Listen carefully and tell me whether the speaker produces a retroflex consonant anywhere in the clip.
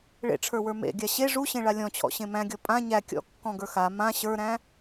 yes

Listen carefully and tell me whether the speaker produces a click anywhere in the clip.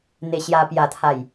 no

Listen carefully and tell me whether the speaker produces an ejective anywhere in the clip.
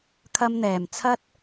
no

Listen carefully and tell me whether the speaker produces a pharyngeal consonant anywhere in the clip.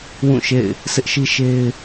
no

